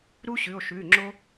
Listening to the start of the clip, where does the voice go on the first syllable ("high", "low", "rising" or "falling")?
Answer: high